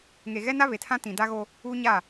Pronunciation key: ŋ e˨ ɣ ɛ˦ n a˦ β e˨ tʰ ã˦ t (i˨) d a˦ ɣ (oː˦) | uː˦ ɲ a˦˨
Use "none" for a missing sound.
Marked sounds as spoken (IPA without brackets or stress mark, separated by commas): ĩ˨, o˦